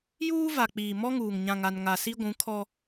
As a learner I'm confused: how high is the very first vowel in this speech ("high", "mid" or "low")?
high